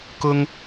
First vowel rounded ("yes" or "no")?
yes